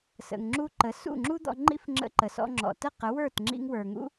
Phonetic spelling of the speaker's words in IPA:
s ə̰˨ ŋ ŋ͡ǁ u˧ ǃ ə˨˦ s ṵ˦˨ ŋ͡ǁ u˦ d̪ ɔ̰˧ ŋ͡ǃ ḭ˦ f ŋ͡ǁ ə̰˧ ǃ ə˨ s ɔ̰˧ ŋ͡ǁ ɔ̰˨ t ə˦˨ q ə˨˦ w ə˞˦˨ t ŋ͡ǁ ḭ˧ ŋ w ə˞˨ ŋ ṵ˦

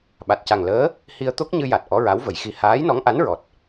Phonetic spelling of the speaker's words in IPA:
ɓ a˨˩ t̚ c a˨˩ ŋ l əː˧˥ | h i˧ ə̯ t̪ o˦˥ k̚ ɲ ɨ˧ j a˨˩ t̚ ʔ ɔ˧˥ ɹ a˧˥ w v ə˨˩˦ j x i˧˥ h aː˧˥ j n ɔ˧˥ ŋ ʔ a˧˥ n ɹ ɔ˨˩ t̚

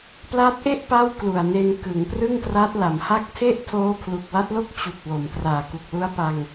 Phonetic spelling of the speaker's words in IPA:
p l a˦˥ t̚ ʔ e˥˩ ʔ p a˥˩ w k l u˨˩ a̯ n e˧ n k ɯ˩˦ ŋ p r ɯ˥˩ ŋ t r a˦˥ t̚ l a˩˦ m h a˦˥ k̚ tʰ e˥˩ ʔ tʰ oː˦˥ pʰ l u˨˩ k̚ w a˦˥ t̚ l o˥˩ k̚ t͡ɕ u˨˩ k̚ w o˩˦ m t r aː˨˩ k u˨˩ k̚ l u˦˥ a̯ p a˧ ŋ

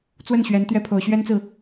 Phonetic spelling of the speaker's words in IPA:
t͡s w ə˥˩ n ɕ ɥ ɛ˧˥ n t̪ ɥ ɛ˥ pʰ o˧˥ ʊ̯ ɕ ɥ ɛ˥ n t͡s ɹ̩˨

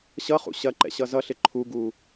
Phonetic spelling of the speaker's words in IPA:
ɕ ʌ χ ṵ ɕ ɐ ǃ ɛ̰ ɕ ʌ z ʌ ɬ ɪ ǃʰ u ɡ u

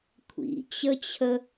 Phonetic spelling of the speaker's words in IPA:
kʷʰ ḭ t͡ɕ ə t͡ɕʰ ə

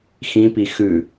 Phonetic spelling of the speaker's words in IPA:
x ĩ p i x ʉ

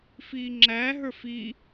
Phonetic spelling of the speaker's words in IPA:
f iː ŋ͡ǁ æ ɦ ə˞ f i

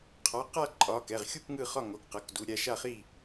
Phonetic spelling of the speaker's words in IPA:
qʰ ɒ˩˧˩ q a˥˨ ǃʼ ɒ˩˧˩ k ɛ˩˧˩ ʁ xʲ u˥˨ p ŋ ɯ˥˨ χ ɒ˥˨ ŋ o˩˧˩ k q ɤ˩˧˩ k d u˩˧˩ ɾʲ a˥˨ ʃ a˥˨ χ i˥˨

